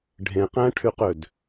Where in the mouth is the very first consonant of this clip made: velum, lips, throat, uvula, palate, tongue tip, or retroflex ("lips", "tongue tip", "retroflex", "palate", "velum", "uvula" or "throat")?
retroflex